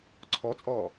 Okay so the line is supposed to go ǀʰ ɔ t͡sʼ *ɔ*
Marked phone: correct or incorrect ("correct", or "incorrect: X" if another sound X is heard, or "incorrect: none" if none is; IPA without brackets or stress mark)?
incorrect: ɔː